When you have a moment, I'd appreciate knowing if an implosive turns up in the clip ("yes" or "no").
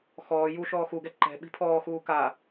yes